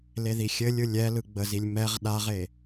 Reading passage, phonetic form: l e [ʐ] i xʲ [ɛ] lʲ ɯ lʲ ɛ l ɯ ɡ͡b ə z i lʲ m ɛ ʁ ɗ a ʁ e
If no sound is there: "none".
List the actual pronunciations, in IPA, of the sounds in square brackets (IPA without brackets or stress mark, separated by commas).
ð, ɘ